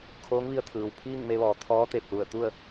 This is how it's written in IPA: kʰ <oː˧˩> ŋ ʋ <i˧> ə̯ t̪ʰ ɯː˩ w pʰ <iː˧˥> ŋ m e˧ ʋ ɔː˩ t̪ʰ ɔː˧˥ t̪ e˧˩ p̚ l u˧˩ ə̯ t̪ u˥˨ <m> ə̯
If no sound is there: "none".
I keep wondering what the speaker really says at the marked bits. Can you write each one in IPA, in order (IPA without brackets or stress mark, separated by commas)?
oː˧˥, i˧, iː˥˨, none